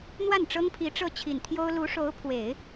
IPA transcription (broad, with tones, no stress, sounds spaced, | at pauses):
n̪ w a˥˩ n ʈ͡ʂ ɤ˥ ŋ pʰ i˧˥ ʈ͡ʂ ɤ˥˩ t͡ɕʰ i˨˩ n t̪ʰ j o˥ ʊ̯ l u˧˥ ʂ o˧˥ ʊ̯ pʰ w e˨˩˦ ɪ̯